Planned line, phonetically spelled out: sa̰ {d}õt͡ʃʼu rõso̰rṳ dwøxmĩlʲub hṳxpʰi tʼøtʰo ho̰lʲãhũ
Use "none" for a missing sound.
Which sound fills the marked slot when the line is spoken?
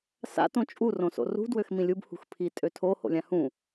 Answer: t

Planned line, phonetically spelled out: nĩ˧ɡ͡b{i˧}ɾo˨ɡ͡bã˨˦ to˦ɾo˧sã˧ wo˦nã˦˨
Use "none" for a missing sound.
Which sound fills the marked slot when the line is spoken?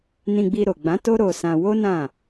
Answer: i˧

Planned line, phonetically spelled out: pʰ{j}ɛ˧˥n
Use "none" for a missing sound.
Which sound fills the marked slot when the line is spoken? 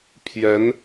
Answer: j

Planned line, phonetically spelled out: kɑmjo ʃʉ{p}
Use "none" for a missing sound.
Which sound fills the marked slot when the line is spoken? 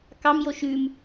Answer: m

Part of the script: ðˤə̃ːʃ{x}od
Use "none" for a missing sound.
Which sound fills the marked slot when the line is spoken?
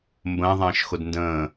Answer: x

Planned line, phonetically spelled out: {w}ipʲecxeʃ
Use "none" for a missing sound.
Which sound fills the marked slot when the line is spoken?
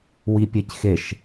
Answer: w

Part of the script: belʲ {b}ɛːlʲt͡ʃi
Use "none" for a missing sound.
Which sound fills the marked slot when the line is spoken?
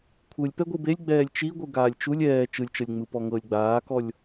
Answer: ɡ͡b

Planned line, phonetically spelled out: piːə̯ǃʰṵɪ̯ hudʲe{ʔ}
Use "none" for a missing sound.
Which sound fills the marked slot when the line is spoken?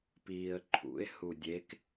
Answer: k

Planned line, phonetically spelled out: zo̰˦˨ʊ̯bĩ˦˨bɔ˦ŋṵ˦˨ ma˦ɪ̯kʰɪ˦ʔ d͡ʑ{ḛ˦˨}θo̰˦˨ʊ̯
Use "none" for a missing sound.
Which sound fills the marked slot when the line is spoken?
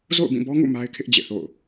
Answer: ḛ˦˨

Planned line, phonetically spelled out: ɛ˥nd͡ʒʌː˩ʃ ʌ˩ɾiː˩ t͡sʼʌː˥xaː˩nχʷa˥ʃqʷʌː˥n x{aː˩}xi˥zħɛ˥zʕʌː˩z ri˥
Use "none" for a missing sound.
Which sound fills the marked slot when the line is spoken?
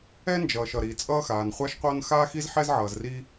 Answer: aː˥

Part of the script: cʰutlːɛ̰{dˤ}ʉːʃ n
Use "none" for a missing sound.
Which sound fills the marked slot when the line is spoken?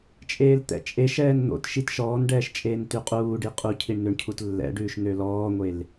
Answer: ɖ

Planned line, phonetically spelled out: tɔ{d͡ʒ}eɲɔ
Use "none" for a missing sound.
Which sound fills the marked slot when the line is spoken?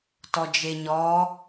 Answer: d͡ʒ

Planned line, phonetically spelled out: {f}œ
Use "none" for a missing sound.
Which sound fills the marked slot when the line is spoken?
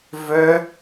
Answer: v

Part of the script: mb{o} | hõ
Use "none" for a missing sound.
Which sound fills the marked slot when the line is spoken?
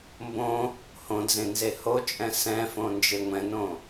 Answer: õ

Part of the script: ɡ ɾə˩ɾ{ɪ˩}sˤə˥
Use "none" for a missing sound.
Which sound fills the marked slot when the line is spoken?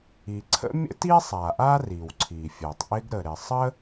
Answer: ɪ˩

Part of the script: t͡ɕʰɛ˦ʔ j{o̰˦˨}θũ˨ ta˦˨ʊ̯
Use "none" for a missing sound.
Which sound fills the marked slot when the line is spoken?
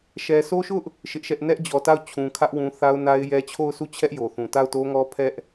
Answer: o˨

